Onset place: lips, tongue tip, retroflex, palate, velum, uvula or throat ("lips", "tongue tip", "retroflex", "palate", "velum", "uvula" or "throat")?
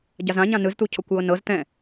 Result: palate